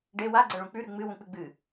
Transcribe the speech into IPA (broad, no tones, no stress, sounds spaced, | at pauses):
ɖ e w a ɡ͡ǀ ɐ ɭ ũ k͡p ʉ ɾ ʉ ŋ͡m ɨ w ũ k͡p ɨ ɡ͡b ɨ